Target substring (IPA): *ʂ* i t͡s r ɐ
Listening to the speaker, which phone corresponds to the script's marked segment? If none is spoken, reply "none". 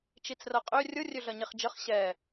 t͡ʃ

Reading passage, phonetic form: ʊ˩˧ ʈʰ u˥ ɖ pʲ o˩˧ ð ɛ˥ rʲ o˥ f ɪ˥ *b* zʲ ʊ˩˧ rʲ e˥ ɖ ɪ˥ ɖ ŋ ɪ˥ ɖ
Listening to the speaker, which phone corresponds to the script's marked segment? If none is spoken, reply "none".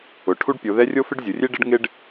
ɖ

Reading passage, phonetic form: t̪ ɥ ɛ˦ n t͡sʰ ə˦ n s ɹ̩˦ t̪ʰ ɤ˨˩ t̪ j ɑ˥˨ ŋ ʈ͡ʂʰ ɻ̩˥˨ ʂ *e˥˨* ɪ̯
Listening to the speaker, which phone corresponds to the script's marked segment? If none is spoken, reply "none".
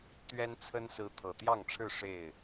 e˥˨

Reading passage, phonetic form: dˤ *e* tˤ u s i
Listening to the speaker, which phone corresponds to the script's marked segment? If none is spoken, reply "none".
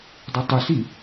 e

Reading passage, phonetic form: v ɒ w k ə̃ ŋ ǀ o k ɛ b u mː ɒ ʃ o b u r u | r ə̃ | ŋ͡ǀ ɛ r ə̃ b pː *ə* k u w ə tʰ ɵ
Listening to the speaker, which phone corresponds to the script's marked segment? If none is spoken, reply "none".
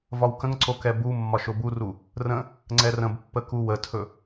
ə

